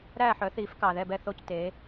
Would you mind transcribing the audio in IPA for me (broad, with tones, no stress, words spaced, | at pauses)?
ɾæː˥˩ħœ˩˥θiː˩˥f kɑː˩ðɛ˥˩bɛ˥˩θo˥˩c teː˩˥